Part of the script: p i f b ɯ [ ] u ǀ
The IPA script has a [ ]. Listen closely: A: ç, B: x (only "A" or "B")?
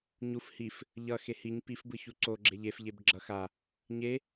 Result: A